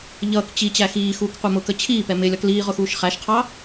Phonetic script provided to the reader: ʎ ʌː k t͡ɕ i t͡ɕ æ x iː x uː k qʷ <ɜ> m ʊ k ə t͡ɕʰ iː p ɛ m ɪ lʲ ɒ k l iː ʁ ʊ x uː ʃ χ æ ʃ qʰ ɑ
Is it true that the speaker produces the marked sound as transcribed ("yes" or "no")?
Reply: yes